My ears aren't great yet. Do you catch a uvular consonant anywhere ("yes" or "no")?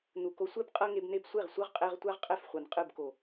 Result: yes